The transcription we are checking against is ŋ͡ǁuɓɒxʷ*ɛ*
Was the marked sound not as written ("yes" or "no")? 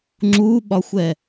no